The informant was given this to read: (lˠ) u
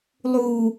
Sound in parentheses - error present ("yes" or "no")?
no